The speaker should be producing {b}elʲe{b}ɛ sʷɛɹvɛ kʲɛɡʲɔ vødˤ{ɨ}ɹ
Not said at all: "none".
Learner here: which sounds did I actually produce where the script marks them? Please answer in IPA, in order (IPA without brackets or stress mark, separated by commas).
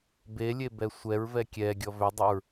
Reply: b, b, ɛ